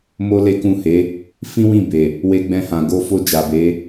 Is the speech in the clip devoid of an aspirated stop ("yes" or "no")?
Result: yes